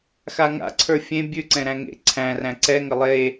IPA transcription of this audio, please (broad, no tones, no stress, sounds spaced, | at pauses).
x a ŋ a̰ ǀʰ ə˞ fʲ ẽ bʲ ʉ ǀ ɛ̃ ɾ æ̃ ŋ ḛ ǀʰ æ̃ r æ̃ ǀ ɛ ŋ ə lˠ e